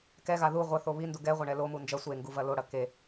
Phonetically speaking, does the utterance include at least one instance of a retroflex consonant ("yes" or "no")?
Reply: yes